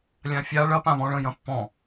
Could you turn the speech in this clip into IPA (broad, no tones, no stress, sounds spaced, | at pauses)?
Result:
lʲ ã fʲ a ɭ ɐ p ã β ɔ̃ ɭ ə̃ j ɐ̃ pː ɔ̃